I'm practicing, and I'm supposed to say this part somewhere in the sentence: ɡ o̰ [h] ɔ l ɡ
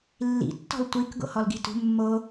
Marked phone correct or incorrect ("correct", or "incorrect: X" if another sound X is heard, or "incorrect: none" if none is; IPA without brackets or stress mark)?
correct